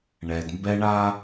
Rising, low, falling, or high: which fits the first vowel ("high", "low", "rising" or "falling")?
low